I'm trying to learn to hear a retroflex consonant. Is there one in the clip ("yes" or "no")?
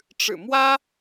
yes